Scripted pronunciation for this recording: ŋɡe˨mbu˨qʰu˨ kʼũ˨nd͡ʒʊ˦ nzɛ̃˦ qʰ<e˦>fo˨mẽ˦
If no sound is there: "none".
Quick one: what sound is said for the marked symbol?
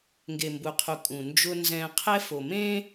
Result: ɛ˦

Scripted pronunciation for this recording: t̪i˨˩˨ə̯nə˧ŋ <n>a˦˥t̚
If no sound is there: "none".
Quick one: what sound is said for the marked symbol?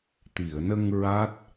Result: ɹ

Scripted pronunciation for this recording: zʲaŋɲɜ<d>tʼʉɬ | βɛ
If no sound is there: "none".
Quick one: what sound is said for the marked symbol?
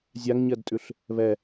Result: d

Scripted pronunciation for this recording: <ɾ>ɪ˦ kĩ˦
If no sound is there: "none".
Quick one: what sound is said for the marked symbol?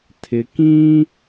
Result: tʰ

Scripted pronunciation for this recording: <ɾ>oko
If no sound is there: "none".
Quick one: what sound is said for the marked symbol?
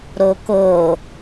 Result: ɾ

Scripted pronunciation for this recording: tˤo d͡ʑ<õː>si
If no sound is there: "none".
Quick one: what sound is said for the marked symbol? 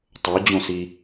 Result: õ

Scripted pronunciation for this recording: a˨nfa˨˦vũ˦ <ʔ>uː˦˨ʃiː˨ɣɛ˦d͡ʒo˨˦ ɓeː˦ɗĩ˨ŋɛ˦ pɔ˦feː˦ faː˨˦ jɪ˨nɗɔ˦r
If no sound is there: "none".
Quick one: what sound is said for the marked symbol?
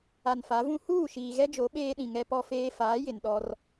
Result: h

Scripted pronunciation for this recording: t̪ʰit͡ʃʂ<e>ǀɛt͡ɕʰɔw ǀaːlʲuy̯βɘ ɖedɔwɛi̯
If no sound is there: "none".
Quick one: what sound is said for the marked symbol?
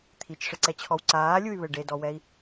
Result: ɘ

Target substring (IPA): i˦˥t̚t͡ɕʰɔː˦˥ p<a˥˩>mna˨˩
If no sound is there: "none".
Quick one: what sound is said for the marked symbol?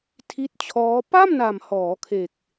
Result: a˥˩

